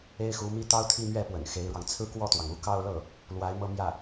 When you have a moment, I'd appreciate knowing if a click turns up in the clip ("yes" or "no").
no